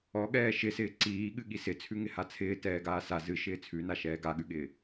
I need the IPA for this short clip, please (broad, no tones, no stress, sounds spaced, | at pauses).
ɔ ɠ ɛː ʃ ɪ s ɪː ǀ iː ɠ ɨ ɠ i s ɪ t͡sʰ ʉ ŋ ɪ h a t͡sʰ ɪː t ɛː ɡ aː s a z ɨ ʃ ɪː t͡sʰ ʉ n a ʃ ɛː ɡ a ɠ ʉ ɠ ɪː